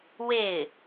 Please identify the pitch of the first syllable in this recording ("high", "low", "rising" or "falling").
falling